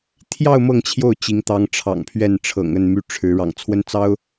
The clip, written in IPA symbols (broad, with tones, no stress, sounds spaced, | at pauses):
t̪ʰ j ɑ˥˧ ʊ̯ m ɤ˥˧ ŋ t͡ɕʰ j o˥˩ ʊ̯ t͡ɕ i˧˥ ŋ t̪ ɑ˧˥ ŋ ʈ͡ʂʰ ɑ̰˨˩ ŋ pʰ ɥ ɛ˥˩ n ʈ͡ʂʰ ɤ̰˨˩ ŋ ə˥˩ n m y˥ ʈ͡ʂʰ ɻ̩˧˥ ɻ ɑ̰˨˩ ŋ t͡sʰ w ə˥ n t͡s ɑ˥ ʊ̯